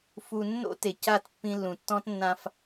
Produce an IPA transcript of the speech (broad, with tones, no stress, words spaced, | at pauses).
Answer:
fu˨nːo̰˦te˨ ca˦˨tpːĩ˦ lːũ˨tːɔ̃˦tnːã˦f